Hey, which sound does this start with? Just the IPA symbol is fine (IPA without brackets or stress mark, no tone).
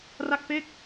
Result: r